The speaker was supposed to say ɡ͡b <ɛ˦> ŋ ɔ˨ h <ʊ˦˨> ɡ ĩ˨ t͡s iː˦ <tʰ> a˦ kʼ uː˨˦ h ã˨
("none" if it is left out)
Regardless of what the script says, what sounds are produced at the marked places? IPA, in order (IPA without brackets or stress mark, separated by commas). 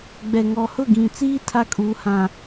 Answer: ɛ˨, ʊ˦˨, tʰ